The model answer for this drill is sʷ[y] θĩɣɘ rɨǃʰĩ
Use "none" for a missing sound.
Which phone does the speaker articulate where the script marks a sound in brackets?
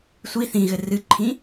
i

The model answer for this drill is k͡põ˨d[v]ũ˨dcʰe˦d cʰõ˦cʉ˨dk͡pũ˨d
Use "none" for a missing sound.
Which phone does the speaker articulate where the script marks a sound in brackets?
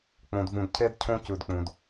v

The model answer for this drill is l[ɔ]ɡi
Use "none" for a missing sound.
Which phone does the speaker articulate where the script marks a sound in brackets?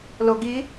o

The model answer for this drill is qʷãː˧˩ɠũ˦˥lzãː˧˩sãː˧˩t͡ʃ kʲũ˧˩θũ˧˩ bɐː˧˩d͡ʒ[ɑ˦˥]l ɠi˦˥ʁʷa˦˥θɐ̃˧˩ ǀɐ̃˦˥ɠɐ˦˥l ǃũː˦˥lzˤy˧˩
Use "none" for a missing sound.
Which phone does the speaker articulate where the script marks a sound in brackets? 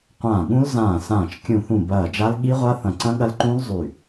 a˦˥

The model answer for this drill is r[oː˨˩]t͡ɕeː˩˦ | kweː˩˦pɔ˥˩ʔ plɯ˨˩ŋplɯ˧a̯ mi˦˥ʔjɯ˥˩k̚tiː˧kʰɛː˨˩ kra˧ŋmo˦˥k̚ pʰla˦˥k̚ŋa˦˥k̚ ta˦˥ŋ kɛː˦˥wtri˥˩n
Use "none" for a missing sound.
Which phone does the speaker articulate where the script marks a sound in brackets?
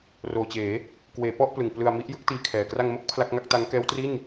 oː˨˩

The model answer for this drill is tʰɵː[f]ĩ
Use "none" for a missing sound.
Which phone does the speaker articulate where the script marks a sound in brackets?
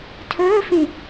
f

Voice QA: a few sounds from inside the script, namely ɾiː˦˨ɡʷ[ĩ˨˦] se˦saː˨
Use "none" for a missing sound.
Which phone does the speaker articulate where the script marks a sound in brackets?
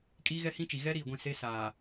ĩ˦˨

